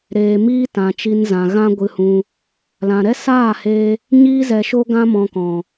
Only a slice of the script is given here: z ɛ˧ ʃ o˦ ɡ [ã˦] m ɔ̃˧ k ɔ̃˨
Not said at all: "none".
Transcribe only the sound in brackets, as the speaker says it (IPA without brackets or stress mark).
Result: ã˦